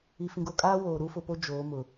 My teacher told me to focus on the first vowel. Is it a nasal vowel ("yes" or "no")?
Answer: no